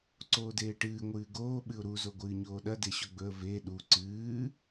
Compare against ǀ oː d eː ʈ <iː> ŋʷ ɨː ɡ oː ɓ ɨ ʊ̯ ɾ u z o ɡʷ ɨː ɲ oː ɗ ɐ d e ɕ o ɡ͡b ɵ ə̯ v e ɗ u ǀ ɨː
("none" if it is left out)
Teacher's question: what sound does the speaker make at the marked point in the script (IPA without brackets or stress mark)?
ɨː